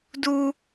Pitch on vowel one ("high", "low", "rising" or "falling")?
high